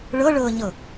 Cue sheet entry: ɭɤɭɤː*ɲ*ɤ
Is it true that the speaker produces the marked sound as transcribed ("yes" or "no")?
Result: yes